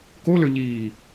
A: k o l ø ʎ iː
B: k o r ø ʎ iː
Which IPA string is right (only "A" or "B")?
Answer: A